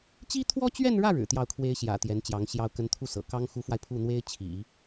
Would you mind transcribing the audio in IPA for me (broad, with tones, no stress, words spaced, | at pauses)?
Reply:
t͡ɕi˥t̪ʰwɔ˥t͡ɕɥɛ˥˧nɻä˥˩ ɻɻ̩˨˩t̪jɑ˥˩ʊ̯kʰwe˥ɪ̯ ɕjä̰˨˩ t̪jɛ˧˥nt͡ɕjɑ˧˥ŋɕjɑ˥ʊ̯ kə˧˥nt̪ʰu˥˩sɤ̰˨˩ kɑ˥ŋxu˧˥fwa˧ɪ̯ pʰu˥˩n̪we˥ɪ̯t͡ɕʰḭ˨˩˦